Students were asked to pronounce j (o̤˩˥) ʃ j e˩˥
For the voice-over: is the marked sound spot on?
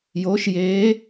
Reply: no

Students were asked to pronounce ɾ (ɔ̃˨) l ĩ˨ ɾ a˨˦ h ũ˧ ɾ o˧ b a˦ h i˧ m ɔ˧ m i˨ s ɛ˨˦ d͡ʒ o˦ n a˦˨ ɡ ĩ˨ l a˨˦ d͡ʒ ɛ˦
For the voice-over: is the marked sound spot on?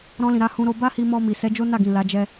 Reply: no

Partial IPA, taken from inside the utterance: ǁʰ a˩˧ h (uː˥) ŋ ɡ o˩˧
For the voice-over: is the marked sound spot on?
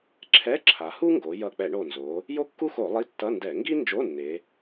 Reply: no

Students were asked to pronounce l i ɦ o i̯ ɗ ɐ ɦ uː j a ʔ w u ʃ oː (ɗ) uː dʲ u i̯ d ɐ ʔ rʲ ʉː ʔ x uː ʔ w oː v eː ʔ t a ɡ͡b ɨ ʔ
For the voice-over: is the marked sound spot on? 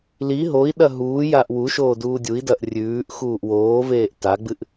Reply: no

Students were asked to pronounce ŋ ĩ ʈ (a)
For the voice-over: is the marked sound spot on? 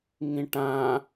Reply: no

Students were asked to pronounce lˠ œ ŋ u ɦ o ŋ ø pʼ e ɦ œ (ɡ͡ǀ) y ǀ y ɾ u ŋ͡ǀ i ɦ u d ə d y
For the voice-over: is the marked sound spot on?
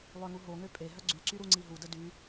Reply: yes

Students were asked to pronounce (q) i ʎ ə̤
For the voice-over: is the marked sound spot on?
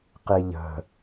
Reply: yes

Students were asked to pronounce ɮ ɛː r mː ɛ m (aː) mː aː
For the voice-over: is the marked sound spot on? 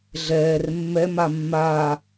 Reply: no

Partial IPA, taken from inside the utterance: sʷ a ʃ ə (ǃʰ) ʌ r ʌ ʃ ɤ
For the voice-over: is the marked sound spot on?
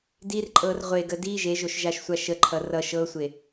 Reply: yes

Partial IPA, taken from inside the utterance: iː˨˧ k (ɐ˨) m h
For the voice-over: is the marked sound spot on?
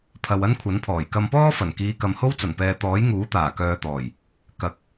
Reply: yes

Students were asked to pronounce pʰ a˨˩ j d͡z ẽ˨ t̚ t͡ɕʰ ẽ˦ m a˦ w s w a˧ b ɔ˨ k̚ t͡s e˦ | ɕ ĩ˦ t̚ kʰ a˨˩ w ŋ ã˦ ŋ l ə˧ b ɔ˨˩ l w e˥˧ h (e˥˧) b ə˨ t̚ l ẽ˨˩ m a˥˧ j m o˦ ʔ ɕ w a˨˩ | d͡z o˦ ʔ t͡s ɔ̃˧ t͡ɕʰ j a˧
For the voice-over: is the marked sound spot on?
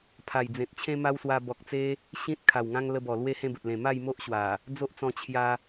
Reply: no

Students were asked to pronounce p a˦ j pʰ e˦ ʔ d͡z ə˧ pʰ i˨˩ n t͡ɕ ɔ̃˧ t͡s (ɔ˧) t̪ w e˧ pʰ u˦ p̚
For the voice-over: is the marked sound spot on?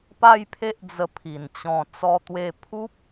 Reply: yes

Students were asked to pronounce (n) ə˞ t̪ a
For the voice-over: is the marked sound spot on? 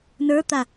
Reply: yes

